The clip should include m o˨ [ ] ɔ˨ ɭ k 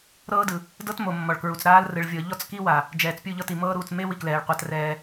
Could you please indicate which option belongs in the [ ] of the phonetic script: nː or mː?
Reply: mː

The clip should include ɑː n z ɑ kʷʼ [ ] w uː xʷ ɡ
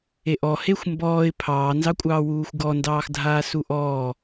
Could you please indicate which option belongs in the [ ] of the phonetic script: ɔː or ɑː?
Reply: ɑː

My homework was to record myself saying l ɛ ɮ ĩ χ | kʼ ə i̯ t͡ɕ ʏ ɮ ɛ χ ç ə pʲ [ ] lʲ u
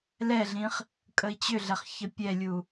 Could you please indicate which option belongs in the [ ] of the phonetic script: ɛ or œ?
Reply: ɛ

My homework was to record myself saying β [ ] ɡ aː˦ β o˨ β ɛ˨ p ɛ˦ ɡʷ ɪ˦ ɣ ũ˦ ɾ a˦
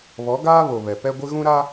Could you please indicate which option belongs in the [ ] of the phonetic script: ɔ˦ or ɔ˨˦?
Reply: ɔ˨˦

